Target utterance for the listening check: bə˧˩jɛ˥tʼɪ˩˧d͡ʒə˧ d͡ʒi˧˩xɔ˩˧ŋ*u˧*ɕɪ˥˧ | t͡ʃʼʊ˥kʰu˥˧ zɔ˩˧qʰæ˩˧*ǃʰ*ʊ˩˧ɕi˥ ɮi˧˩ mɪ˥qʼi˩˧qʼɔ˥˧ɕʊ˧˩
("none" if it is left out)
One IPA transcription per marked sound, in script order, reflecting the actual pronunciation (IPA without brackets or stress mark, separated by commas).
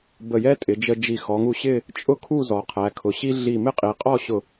u˧, kʰ